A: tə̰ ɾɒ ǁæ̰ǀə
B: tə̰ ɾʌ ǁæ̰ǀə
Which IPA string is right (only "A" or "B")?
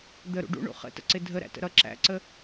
B